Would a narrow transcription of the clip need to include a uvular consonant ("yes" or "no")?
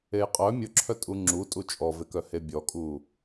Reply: yes